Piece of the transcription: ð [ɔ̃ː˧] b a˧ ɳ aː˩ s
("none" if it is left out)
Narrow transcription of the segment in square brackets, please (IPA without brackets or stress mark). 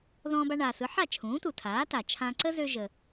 ɔ̃ː˧